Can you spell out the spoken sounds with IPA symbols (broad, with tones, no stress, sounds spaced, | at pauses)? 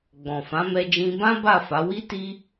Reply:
ɡ͡b ɔ̃˨ f ã˨˦ m ɛ˧ d͡ʒ ĩ˧ b ã˦ b a˦˨ f a˨˦ w i˦ t i˦